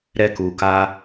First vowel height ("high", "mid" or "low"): mid